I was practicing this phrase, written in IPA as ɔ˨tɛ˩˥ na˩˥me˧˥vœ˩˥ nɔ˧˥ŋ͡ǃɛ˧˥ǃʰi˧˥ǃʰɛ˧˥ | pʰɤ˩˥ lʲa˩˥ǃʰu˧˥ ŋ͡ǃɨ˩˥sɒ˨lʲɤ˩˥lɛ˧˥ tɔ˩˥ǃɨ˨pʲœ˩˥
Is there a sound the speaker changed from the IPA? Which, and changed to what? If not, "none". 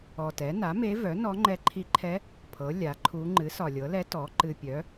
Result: none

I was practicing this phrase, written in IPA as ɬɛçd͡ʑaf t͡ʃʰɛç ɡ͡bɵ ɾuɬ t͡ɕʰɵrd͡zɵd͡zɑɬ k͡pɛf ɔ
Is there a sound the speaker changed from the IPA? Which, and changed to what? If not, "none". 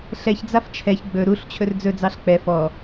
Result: d͡ʑ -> d͡z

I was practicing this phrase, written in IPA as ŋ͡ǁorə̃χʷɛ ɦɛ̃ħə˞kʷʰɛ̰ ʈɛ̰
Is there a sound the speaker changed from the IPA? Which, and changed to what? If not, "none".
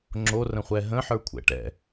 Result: ɛ̃ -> ə̃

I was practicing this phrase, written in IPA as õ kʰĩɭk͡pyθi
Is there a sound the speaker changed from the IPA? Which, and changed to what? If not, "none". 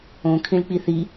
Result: y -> i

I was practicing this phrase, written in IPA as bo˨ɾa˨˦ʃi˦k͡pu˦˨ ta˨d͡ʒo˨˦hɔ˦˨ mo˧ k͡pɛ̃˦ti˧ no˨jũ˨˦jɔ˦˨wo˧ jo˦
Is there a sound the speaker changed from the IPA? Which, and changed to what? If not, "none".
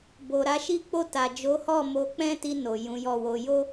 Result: u˦˨ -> o˦˨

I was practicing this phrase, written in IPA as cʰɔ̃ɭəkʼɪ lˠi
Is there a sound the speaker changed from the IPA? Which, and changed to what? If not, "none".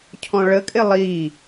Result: none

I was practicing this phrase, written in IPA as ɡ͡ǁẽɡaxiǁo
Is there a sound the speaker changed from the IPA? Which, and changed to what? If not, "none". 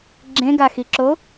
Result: none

